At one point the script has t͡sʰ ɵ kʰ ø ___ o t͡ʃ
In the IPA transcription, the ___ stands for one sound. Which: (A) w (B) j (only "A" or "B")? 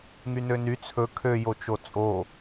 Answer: B